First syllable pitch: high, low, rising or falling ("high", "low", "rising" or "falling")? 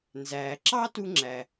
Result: low